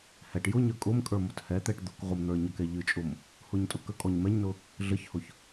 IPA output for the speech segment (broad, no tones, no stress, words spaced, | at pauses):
hɛʈ jʊɲə˞ kʼʊmkʼə˞ mʊthɛt̪ɛʈ d̪ʊk ʁʷəmn̪ə˞ ɲəkɛ ʎɨt͡ʃʼʊm | hʊɲtʼʊkə kʼɔɲmɛɲnʊ | ɮəçhʊç